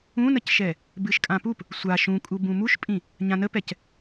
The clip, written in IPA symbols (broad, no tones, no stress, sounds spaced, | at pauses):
ũ n ə c ʃ ɛ | b ɨ ʃ kʼ ã p u p | sʷ a ʃ ũ kʼ u b ũ m u ʃ pʼ ĩ | ɲ ã n ə p ɛ c